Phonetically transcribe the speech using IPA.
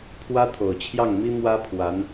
pʰwä˥t̪ʰo˨˩ʊ̯t͡ɕʰjɑ˥˩ŋmi˥ mwä˥pʰwa˧˥n

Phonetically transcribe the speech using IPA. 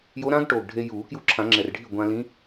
jo˧˥ɾã˧˥ɡ ʈoː˨˩ɡɖʱe˧juː˨˩˦kju˧˥ ǁʰã˨˩˦ŋ͡ǁɛ˨˩rɖʱi˥˩ ɡʷã˧lĩ˧˥

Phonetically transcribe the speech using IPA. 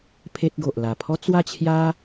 pʰe˦t̚ɡo˨ʔ la˨˩pʰɔ˦ t͡swa˥˧t͡ɕʰja˦

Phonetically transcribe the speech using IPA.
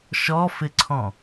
ʃɔfɪǀʰɔ̃

